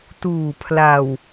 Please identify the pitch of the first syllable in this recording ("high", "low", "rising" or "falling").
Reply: low